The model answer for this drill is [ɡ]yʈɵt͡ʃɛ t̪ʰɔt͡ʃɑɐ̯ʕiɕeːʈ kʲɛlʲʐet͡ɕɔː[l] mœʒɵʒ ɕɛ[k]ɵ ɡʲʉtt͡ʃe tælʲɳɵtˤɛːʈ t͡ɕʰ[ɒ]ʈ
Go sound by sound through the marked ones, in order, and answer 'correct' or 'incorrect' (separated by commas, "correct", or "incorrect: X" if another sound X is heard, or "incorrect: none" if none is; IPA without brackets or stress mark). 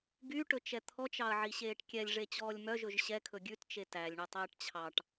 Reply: correct, incorrect: lʲ, incorrect: kʰ, incorrect: ɑ